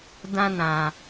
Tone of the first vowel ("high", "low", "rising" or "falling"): high